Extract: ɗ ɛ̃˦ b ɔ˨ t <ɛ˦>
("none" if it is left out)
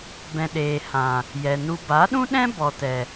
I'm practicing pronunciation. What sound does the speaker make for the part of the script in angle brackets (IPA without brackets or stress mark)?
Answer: ɛ˨